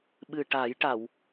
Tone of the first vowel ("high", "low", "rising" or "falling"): low